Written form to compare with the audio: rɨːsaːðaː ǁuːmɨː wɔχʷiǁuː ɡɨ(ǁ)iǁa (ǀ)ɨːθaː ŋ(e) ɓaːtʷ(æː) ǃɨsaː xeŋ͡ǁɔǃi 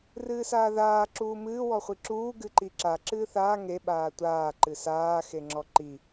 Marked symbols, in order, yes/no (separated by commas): no, no, yes, no